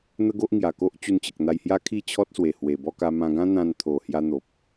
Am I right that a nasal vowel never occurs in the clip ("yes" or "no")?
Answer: no